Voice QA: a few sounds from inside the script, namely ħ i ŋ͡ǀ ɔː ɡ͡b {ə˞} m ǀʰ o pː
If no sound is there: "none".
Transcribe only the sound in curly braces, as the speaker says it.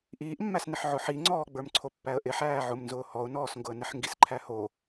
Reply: ə˞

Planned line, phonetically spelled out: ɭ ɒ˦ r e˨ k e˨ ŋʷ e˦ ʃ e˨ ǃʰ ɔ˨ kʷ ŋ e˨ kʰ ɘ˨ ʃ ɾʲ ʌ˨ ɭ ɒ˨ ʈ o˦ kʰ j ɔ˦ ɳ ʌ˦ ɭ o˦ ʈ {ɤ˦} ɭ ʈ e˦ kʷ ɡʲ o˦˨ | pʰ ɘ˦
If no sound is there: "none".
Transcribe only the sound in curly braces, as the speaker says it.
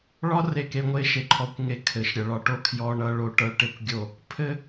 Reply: ɤ˦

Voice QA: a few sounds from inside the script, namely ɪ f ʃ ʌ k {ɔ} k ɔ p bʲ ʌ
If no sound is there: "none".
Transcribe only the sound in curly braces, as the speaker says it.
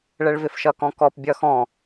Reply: ɔ̃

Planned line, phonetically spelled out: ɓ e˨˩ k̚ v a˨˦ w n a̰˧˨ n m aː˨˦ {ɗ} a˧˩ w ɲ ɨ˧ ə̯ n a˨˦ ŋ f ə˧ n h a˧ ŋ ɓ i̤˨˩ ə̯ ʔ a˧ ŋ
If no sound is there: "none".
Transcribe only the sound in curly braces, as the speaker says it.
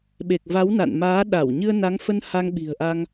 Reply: ɗ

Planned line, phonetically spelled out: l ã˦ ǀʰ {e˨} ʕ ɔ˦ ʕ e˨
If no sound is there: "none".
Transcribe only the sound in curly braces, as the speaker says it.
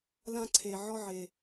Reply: e˨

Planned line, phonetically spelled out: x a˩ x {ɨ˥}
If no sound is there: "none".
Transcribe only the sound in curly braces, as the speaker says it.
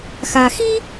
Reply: i˥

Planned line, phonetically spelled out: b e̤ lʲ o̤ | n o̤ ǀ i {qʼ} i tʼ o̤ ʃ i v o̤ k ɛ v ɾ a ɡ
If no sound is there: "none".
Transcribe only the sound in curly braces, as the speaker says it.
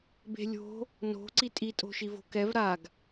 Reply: tʼ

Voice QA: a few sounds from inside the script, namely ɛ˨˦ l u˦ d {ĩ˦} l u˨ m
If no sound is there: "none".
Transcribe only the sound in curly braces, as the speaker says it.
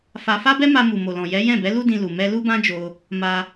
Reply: ĩ˧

